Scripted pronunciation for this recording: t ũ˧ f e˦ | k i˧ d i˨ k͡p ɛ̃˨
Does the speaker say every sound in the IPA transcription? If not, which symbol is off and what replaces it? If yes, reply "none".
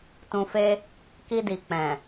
none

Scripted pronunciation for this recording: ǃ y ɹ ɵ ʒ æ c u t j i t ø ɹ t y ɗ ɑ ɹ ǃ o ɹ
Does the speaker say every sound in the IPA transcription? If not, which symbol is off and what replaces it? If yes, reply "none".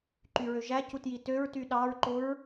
ɵ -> ø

